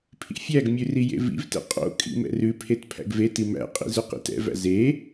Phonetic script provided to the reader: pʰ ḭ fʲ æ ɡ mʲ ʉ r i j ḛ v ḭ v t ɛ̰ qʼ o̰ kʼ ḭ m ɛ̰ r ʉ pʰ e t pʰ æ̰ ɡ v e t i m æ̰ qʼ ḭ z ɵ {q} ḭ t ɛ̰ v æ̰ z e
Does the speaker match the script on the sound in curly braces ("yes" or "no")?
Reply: yes